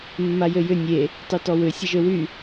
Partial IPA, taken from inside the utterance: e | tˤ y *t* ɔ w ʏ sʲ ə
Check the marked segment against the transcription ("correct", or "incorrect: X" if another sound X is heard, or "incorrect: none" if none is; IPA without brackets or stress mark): correct